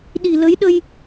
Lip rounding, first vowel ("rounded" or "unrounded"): unrounded